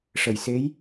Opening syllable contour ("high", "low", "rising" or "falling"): low